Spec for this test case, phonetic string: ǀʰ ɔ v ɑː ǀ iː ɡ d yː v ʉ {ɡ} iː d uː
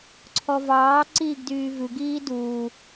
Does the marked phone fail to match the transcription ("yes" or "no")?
no